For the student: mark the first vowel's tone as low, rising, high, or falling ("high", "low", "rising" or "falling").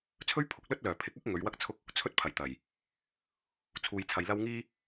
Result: high